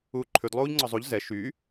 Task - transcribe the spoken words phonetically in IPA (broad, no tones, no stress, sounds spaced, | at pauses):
uː ǃʰ ʉ d lˠ uː ʎ ŋ͡ǀ ɔ zˤ u ʎ z ɛ ʃ y